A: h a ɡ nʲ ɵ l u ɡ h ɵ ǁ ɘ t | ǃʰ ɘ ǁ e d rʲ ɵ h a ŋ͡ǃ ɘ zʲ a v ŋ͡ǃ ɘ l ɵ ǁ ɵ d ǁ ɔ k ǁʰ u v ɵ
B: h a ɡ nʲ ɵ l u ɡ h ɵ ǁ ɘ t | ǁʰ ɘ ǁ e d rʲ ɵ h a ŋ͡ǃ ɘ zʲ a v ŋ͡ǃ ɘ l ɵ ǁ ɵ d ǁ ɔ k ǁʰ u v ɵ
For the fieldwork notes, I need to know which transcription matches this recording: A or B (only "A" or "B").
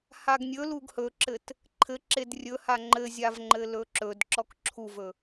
A